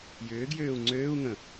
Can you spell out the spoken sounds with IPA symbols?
j ʏː ɡ j øː u̯ ŋ͡ǀ øː u̯ ŋ ə̃

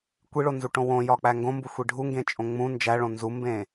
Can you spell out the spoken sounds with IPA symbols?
kʷ i ɭ o n z u ʈ õ w õ j ɒ k͡p æ ŋ ɡ õ m b u xʷ i ɖʱ u ŋ ɡ ẽ t͡ʃʼ õ ŋ͡m ũ n d͡ʒ æ ɭ õ n z u m b ẽ

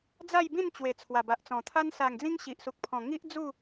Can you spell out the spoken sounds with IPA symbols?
d͡z a˥˧ j b ĩ˥˧ n t͡ɕ w e˨˩ t͡sʰ w a˨˩ b a˨ ʔ t͡s ɔ̃˨˩ t̪ʰ a˦ n s a˨˩ ŋ d͡z ĩ˧ ŋ ɕ i˨ ʔ s u˨ k̚ pʰ ɔ̃˨˩ ŋ i˦ ʔ d͡z u˥˧

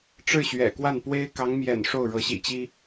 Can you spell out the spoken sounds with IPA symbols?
ʈ͡ʂ ɻ̩˥˩ ɕ ɥ ɛ̰˨˩ k w a˥˩ n p w e˥ ɪ̯ k ɑ˧˥ ŋ m j ɛ̰˨˩ n ʂ o˥˩ ʊ̯ ɻ ɤ˧˥ ɕ ḭ˨˩ t͡ɕ i˥

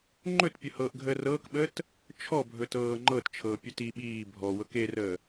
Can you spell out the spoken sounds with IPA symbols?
ŋ͡ǃ ɵ t pʲ ɵ h ɤː ʔ ɡʱ əː r ɤː k ɓ əː t | t͡ʃʰ ɔ bʱ ɵ t ɤː ŋ͡ǃ ɤ t t͡ʃʰ ɤː pʲ ɵ t i ɓ iː bʱ ɔ w ɤ k e r əː

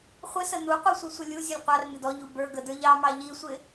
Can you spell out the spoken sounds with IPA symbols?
χʷ ɪ s ə n u qʷ i sʷ i sʷ ə lʲ u zʲ u lʲ qʷ ɑ r n ɪ d ɔ ʎ u b ə˞ ɡ ə d ə˞ ʎ ɑ m ɑ ʎ i sʷ ɪ

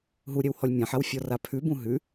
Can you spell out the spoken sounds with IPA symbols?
ɦ u ɾʲ ɛ w h ɔ lʲ mʲ ã ħ a w fʲ ɔ r a pʰ ʉ b ũ ɦ ʉ

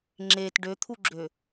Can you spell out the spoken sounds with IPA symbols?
ŋ͡ǁ e t ɖ ø t̪ʰ u ɡ͡ǁ ø

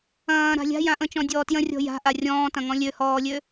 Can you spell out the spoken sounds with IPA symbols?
ɐ̃ː ɾ a̤ lʲ a̤ j ã ʔ ə̃ t͡ʃ ɔ̃ dʲ ɔː t j ə̃ rʲ ɔ̤ j a̤ ʔ a rʲ ɔ̃ː t ɐ̃ ŋ ɔ̃ lʲ ø h ɔː lʲ ø

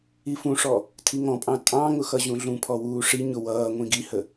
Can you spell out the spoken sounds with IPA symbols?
i f ũ ʂ ɔ | tʰ i ŋ ɔ̃ pʼ ɑ̃ tʼ ɑ̃ ŋ ʊ x ʌ ʑ ũ ɮ ũ pʰ ɔ w uː ʂ i ɲ ʊ w ʌː ŋʷ ĩ ɡ i h ə

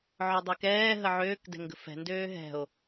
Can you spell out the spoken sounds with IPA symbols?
ʕ ɔ dˤ e k ɛː ɦ ə ʕ øː k d ɛ̤ ŋ ɡ ə̤ f ɛ̤ n d øː ɦ ɛ̤ o̯

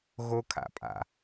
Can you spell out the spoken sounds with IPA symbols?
ɣ o kʰ a̰ pʼ a̰

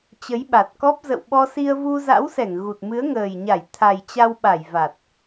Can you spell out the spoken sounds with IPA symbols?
t͡ɕ ə˨˦ j ɓ a˨˩ t̚ k ɔ˦˥ p̚ z ə̰˧˨ w ɓ ɔ˧ s i˧ ə̯ v u˧ z a̰˧˥ w s ɛ˧˩ ŋ ɣ u˨˩ t̚ m ɨ˨˦ ə̯ ŋ əː˨˩ j ɲ a˧˩ j t̪ʰ a˨˩ j t͡ɕ a˧ w ɓ a˧˩ j v a˨˩ t̚

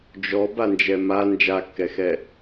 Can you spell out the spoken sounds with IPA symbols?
d͡ʒ ɔ b a n d͡ʒ ɛ m a n d͡ʒ a kː ɛ x ɛ

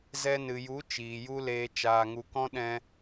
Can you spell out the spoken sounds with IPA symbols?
z ɛ˧ n ɨ˨ j u˨˦ t͡ʃ iː˨ j u˦ l eː˧ t͡ʃ aː˧ ŋ u˧ k ɔ̃˦ ɗ ɛ̃˧

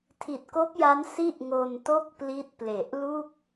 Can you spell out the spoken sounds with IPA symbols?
tʰ i˨˩ t̚ k o˦˥ k̚ j a˦˥ n s i˥˩ ʔ ŋ o˧ n t o˥˩ k̚ p l i˦˥ t̚ p l e˨˩ ʔ l u˥˩ k̚

